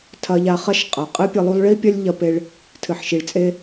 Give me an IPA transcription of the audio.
tʰɐ˧ʎa˧χɐ˦ʃ qʼɐ˨ qʼɨ˦pʲɨ˧lˠu˦lˠ ɭi˦pʲɐ˦lʲ ʎɐ˧pe˧ɭ | tʰɨ˨ħʃi˨ɭt͡sʼe˦

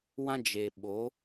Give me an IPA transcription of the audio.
wã˦d͡ʒe˨ɓo˨˦

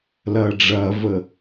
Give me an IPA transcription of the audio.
lɐːɖ͡ʐɐːvə

